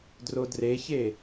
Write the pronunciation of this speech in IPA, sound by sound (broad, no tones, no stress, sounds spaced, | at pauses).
d r o d r e ç e